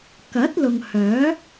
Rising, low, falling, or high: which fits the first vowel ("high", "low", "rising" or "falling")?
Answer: rising